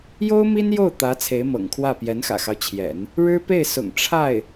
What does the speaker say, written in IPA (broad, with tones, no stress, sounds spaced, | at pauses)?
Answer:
j o˥ ʊ̯ m i˥ n j o˥˩ ʊ̯ t̪ ä˧˥ t͡sʰ e˧˥ ɪ̯ m ɤ̰˨˩ ŋ kʰ w ä˥˩ p j ɛ˧˥ n x ä̰˨˩ x ɑ˦ ʊ̯ t͡ɕʰ j ɛ̰˨˩˦ n | ɻ ɻ̩˥ p e˥˩ ɪ̯ s ʊ̰˨˩ ŋ ʈ͡ʂʰ a˥˩ ɪ̯